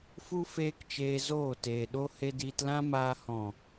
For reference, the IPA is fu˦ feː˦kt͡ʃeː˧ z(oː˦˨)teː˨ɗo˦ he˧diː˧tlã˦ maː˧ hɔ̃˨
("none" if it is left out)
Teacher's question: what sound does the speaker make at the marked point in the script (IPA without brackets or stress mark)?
oː˦˨